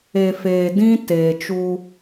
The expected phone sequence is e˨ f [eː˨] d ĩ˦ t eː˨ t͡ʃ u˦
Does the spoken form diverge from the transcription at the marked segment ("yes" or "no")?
no